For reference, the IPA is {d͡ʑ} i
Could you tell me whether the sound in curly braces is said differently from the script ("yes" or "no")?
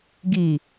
yes